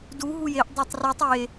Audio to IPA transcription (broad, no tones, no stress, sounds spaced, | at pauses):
d u ɦ u j e ʔ dˤ æ tˤ r u tˤ e